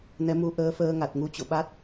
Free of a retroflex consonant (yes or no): yes